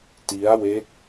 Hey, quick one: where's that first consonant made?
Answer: tongue tip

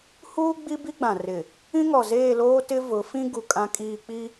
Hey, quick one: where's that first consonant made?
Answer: throat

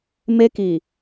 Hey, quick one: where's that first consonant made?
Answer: lips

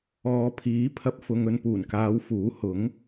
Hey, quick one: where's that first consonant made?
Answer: lips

